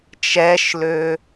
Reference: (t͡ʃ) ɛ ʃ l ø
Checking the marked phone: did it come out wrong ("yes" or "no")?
no